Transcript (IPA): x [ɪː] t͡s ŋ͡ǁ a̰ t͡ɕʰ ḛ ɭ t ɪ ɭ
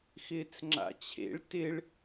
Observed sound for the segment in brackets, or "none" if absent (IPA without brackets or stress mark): ɪː